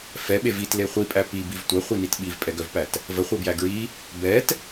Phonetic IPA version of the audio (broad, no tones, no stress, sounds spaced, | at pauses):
f ɛ ɓ e v i t l e χʷ i pʼ æ p i b i v tʷ ɜ χʷ i n i t ɓ i v pʼ ɛ ɡ œ v p æ t | v ə χʷ ɛ b j æ ɡ ɹ i | b ɛ t